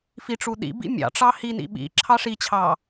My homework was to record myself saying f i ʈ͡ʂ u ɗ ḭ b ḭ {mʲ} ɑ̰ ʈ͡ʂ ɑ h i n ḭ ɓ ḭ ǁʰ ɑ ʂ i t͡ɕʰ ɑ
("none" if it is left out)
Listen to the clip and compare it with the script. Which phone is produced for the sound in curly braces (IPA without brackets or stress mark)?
mʲ